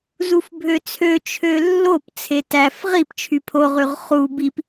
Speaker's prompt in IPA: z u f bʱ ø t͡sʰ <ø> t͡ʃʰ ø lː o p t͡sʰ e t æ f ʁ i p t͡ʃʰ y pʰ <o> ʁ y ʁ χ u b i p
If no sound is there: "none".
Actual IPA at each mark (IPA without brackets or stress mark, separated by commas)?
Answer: ø, o